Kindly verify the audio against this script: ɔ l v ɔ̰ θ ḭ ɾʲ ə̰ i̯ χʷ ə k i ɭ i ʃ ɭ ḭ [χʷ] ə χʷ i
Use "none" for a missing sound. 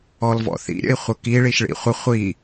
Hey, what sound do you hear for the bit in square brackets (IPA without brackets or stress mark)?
χʷ